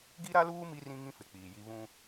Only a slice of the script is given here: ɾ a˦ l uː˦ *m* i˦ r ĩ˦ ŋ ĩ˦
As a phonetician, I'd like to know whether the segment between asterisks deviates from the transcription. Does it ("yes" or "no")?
no